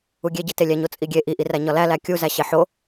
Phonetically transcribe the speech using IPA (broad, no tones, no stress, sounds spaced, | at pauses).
u ɡʲ e ɟ i t e lʲ æ ɲ o t͡sʼ i ɡʲ e ʔ i ʔ i r æ ɲ ɒ l æ l æ kʲ u z æ ɕ e ħ o